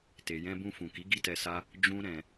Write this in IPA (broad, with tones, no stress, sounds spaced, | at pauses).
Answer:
t e˨ j ɛ̃˧ b ũ˧ f ũ˨ k i˨˦ ɡ i˦ t ɛ˧ s a˦ | d͡ʒ ũ˦ ɾ ɛ̃˧